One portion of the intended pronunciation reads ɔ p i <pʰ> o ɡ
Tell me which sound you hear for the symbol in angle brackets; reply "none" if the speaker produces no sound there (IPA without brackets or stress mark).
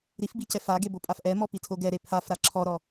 tʰ